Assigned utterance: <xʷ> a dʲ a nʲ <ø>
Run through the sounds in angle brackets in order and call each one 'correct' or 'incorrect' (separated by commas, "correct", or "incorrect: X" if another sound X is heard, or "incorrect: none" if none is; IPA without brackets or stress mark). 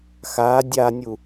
incorrect: x, incorrect: u